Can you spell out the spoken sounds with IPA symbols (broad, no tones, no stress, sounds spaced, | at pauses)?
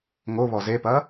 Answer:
ŋ o β ɔ z e p ɐ